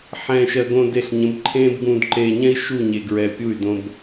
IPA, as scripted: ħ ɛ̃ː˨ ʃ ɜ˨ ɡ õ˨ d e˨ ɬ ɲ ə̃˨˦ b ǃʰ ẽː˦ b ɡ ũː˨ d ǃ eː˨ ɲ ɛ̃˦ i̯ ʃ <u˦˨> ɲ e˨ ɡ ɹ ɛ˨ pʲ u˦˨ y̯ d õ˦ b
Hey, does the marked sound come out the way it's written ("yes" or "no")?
yes